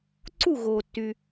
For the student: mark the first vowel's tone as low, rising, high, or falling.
falling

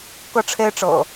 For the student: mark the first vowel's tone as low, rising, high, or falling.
high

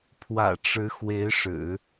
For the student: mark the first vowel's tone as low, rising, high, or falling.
low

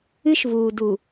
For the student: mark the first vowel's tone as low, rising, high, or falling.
high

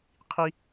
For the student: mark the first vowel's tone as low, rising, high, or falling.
high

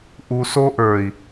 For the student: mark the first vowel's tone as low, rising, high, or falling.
low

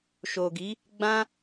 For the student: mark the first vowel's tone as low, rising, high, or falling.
low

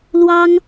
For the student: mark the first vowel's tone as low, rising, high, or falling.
high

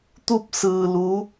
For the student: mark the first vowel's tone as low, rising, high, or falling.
falling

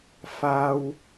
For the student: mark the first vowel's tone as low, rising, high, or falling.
high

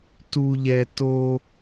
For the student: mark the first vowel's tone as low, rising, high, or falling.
high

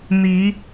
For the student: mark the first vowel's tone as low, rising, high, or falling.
rising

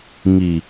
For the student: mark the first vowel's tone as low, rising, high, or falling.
low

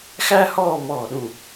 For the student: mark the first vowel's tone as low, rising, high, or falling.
high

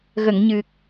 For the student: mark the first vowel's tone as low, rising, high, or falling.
low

